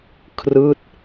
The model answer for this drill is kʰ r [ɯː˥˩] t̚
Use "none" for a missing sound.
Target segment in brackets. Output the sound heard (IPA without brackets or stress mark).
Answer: ɯː˥˩